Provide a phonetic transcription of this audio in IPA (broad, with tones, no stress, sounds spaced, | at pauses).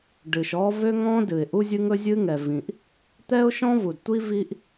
ɖ ɨ˩ ʃ ɔ˥ v ø˥ ŋ ɔ̃˥ d ɨ˩ ɪ̯ ʔ u˥ zʲ ɨ˥ ŋ ɵ˥ zʲ ɨ˥ ŋ ɛ˩ v ĩ˩ ʔ | t̪ ɛ˥ ʊ̯ ʃ ɔ̃˥ v u˩ d tʷ i˥ v i˥ ʔ